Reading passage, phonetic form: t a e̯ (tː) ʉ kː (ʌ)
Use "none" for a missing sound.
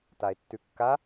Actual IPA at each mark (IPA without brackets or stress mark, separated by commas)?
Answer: tː, a